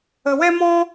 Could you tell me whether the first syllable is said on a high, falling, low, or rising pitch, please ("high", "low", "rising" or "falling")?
low